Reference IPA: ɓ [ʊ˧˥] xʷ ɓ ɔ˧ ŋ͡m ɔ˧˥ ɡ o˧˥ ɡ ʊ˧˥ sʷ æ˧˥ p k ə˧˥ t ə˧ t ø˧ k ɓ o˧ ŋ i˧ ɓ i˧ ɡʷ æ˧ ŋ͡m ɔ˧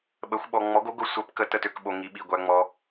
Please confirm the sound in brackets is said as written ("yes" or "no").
no